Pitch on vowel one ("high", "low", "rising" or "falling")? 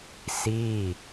falling